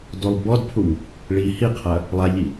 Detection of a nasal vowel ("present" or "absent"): absent